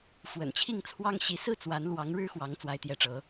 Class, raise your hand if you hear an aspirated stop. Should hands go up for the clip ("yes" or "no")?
yes